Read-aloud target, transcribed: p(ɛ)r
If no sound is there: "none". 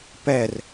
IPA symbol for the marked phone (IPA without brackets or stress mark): ɛ